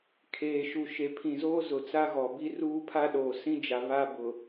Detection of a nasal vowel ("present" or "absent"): present